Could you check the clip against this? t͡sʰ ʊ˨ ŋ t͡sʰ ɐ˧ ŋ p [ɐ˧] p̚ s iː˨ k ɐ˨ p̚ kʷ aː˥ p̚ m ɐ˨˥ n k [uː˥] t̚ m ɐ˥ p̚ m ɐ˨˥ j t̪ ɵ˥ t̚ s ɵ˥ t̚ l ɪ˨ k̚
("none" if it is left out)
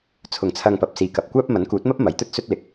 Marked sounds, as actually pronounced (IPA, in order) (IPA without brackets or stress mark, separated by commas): ɐ˨, uː˨˥